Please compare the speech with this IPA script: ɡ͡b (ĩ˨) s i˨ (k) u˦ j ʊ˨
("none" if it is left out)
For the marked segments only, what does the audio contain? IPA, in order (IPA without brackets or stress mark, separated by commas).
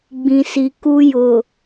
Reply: ĩ˨, k